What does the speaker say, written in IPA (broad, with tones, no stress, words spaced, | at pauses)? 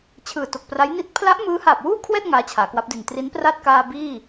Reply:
t͡ɕʰɯː˨˩to˨˩k̚pra˦˥j ni˦˥t̚ pʰla˦˥ʔ mɯː˦˥haː˨˩p̚wuː˥˩kʰwɛː˥˩t̚ ŋaː˦˥t͡ɕʰaː˩˦kwa˦˥p̚di˨˩n tri˦˥npra˥˩t̚kaː˧ biː˥˩